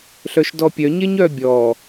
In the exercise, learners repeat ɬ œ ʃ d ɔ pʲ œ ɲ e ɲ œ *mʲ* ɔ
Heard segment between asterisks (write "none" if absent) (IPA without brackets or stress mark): bʲ